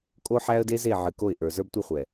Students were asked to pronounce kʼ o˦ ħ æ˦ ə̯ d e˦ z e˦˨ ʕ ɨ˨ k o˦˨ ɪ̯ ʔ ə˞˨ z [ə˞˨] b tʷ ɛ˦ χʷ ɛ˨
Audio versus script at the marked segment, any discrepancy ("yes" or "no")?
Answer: yes